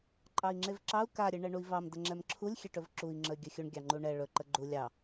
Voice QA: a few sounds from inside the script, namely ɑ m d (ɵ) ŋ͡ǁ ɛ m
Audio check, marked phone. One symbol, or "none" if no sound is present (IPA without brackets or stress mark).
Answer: ə